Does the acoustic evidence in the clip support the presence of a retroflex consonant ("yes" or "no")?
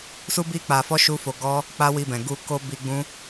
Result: no